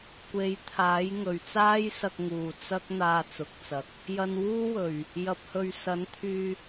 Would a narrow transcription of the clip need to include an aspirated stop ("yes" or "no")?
yes